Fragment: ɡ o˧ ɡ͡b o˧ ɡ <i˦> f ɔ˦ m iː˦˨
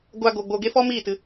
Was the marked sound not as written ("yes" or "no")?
yes